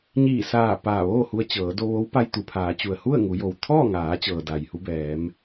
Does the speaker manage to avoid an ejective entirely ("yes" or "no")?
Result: yes